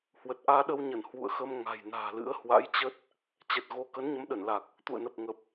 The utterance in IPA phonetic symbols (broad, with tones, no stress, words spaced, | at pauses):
hwə˨˩t̚ʔaː˧ɗə˧wɲə˧˩n hwṵ˧˨ə̯xə˧m ŋa̤˨˩jna̤ː˨˩lɨ̰˧˥ə̯ hwa̰˧˥jt͡ɕə˦˥t̚ | t͡ɕɛ˨˩t̚ ɣo˧ kə˨˦nɲə˨˦mɗə˧˩nla˨˩k̚ | t̪ṵ˧˨ə̯nə˨˩p̚ŋə˨˩p̚